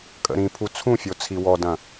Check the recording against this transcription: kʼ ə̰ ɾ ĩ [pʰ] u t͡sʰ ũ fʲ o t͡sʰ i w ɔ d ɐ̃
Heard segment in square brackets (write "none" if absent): pʰ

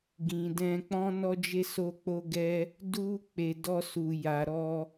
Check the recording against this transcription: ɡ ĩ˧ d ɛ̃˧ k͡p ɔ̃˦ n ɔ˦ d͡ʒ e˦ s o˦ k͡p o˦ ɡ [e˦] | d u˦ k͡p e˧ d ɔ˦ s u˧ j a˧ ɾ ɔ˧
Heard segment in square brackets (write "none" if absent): ɛ˦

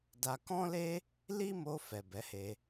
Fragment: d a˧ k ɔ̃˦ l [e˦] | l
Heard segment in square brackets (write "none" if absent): e˦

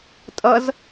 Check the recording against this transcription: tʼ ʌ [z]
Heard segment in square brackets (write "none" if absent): z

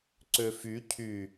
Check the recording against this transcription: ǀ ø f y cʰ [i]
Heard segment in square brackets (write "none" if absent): y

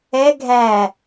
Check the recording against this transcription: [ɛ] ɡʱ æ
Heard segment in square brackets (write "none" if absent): ɛ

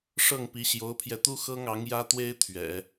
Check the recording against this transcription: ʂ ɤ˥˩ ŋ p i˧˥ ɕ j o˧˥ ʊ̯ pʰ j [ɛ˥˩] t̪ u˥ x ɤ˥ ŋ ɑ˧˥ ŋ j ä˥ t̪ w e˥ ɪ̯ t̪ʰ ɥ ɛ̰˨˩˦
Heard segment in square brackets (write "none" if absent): ɛ˧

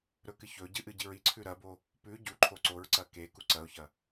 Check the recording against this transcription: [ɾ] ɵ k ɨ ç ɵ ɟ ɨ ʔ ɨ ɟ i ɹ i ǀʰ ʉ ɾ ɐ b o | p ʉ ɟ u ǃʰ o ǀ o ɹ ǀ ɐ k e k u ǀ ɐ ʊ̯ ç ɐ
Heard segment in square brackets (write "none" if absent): ɾ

